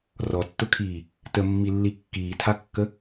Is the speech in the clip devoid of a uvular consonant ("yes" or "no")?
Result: yes